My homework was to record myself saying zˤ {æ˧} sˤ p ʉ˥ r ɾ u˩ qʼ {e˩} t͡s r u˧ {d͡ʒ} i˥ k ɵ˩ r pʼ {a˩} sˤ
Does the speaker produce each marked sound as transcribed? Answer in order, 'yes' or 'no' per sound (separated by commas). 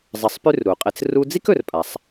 no, no, no, yes